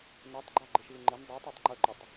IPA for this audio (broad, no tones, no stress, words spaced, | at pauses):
nɛtˤɡ͡ǃa ɡ͡ǃɪʃvɪŋ͡ǃɪn dˤetˤetˤ ŋ͡ǃɵǃʏtˤ